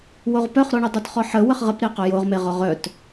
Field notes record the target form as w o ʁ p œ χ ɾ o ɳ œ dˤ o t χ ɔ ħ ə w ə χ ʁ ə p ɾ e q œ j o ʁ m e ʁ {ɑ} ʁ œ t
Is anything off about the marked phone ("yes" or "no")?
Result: yes